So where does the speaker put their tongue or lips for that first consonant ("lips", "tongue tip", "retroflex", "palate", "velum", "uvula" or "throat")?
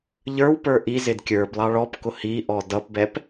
palate